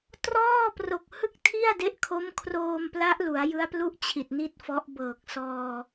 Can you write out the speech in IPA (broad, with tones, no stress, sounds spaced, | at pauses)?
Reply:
t r ɔː˥˩ p r o˨˩ k̚ h ɯ˥˩ k̚ tʰ i˥˩ a̯ d e˦˥ ʔ kʰ o˦˥ m kʰ r oː˧ m p l a˦˥ ʔ l u˩˦ a̯ j ɯ˦˥ a̯ p l u˥˩ ʔ t͡ɕʰ i˨˩ t̚ n i˥˩ t̚ f ɔ˦˥ ʔ b ɤː˨˩ k̚ s ɔː˧